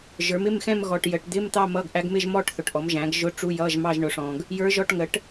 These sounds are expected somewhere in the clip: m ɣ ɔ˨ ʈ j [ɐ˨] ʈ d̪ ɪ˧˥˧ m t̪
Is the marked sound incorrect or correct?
incorrect